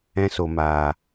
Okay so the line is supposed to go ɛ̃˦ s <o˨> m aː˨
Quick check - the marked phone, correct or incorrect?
correct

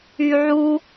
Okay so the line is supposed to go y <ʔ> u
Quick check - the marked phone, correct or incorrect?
incorrect: ʕ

